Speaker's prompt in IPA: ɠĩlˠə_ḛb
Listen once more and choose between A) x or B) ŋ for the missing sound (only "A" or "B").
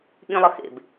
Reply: A